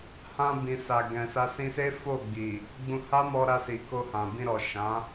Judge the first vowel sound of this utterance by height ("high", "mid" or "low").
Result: low